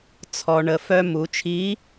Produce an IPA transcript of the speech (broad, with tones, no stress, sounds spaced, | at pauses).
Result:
t͡sʰ ɔ˧ ɳ ə˩˧ f œ˥ m u˩˧ t͡ʃʰ i˧˥